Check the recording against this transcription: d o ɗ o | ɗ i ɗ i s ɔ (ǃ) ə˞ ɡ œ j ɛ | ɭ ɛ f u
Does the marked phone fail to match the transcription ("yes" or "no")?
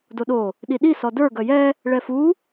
yes